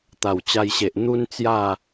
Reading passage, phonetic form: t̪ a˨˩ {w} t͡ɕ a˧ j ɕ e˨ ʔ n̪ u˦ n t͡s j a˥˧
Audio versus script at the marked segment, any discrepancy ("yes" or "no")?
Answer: no